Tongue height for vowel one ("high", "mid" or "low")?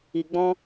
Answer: high